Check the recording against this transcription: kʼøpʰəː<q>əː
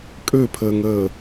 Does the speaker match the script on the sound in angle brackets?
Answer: no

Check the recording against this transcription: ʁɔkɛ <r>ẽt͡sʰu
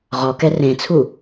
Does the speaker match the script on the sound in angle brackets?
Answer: yes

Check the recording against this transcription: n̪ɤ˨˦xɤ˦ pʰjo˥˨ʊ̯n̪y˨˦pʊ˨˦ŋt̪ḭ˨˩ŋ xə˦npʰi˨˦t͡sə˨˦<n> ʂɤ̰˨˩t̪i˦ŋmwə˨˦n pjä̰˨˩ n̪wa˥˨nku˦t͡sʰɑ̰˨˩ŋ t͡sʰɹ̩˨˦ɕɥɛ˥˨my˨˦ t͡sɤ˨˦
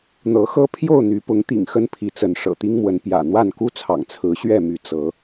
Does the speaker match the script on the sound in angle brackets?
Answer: yes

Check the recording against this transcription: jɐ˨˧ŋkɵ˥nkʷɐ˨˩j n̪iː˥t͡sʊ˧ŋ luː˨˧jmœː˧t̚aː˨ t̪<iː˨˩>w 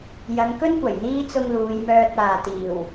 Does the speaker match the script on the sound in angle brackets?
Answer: yes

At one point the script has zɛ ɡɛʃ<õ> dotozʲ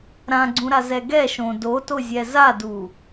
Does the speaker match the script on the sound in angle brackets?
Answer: yes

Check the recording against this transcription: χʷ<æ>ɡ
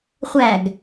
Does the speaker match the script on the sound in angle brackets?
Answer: yes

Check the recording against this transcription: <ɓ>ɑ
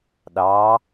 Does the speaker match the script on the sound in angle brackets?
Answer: no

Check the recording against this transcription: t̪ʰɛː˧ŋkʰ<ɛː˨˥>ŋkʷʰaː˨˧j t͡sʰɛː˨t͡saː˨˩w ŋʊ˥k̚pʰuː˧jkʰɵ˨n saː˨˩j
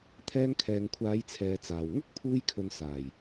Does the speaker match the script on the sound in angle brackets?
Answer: no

